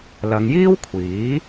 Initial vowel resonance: oral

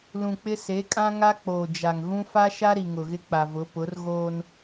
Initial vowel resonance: nasal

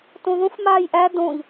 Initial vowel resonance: nasal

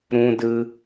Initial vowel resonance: nasal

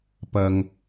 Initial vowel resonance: oral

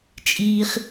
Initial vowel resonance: oral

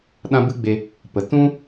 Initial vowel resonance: nasal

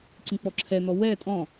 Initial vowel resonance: nasal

